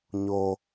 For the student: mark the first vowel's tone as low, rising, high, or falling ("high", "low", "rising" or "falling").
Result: high